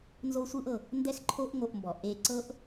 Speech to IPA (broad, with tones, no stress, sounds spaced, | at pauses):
n z o˥ sʷ ɯ˥ ʔ ɤ˩ | n d ɛ˥ x ǃʰ o˥ ʔ ŋ o˧ ʔ m b ɔ˩ ʔ e˧ ǀ ɤ˥ ʔ